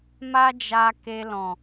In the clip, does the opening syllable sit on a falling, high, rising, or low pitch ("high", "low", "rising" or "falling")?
high